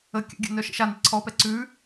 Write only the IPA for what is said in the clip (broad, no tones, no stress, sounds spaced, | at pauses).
ə kʲ ə̰ ɡʲ ə̰ n œ ʃ ə̰ ʃ a n e ǀʰ ɔ p ɛ ǀ ʉ